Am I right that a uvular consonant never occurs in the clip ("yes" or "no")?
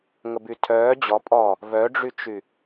yes